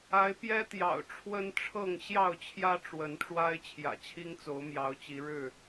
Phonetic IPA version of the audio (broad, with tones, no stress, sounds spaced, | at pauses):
a˨˦ ɪ̯ p j ɛ˦ t̪ j ɑ̰˨˩ ʊ̯ ʈ͡ʂʰ w ə˦ n ʈ͡ʂʰ ɤ˥˨ ŋ ɕ j ɑ˥˨ ʊ̯ t͡ɕʰ j ä˦ ʈ͡ʂ w ə˨˦ n ʈ͡ʂ w a˦ ɪ̯ t͡ɕʰ j ä̰˨˩ t͡ɕʰ i˦ ŋ t͡s o˨˦ ʊ̯ m j ɑ˨˦ ʊ̯ t͡ɕ i˨˦ ɻ ɻ̩˥˨